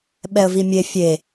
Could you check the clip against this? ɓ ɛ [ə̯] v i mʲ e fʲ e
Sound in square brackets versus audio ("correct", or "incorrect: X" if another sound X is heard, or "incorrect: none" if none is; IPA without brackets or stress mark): correct